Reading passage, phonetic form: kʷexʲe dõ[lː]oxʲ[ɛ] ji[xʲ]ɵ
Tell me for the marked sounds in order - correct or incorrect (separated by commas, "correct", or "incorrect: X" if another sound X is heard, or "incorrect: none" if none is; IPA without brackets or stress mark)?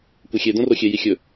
incorrect: r, incorrect: e, correct